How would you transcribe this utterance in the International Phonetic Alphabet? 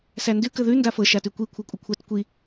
s æ n d ʉ k ə ð ʉ n d a f ɤ ʃ a t ʉ kʷ i kʷʰ ɤ kʷʼ ə kʷʰ a t kʷ i

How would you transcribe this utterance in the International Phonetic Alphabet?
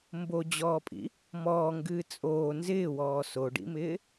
m b o d͡ʑ ɔː pʼ ḭ | m ɔː ŋ ɡ ɨː t͡sʼ oː n z ɪː w ɔː s o ɖ ḭ m ɪː

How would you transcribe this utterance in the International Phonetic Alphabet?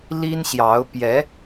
l i˥ n ɕ j ɑ˧˥ ʊ̯ p j ɛ˧˥

